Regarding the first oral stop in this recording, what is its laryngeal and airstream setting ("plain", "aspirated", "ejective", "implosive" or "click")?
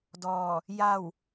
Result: plain